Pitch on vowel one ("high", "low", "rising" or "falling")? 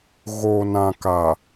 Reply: low